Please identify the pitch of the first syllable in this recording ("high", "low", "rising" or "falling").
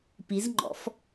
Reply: rising